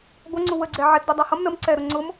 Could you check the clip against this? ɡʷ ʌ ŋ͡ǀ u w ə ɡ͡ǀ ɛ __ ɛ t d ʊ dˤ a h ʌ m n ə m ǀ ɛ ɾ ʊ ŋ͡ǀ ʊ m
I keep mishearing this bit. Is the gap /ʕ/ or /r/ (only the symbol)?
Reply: ʕ